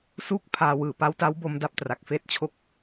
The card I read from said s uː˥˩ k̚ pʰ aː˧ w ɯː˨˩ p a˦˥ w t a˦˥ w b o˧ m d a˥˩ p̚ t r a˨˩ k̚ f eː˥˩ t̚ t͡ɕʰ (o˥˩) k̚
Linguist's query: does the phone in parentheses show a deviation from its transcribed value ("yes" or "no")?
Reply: no